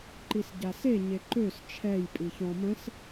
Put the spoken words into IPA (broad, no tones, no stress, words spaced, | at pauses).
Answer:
ǃisɟase ɲeǃøs t͡ʃʰɛj pʼiçɔ̃ mə̃s